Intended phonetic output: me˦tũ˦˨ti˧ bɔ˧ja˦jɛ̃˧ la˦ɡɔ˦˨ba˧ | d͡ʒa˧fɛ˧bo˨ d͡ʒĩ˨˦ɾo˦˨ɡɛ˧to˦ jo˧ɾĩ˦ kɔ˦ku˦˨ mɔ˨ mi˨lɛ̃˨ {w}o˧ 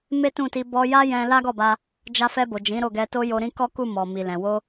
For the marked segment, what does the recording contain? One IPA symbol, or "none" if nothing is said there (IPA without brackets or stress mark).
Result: w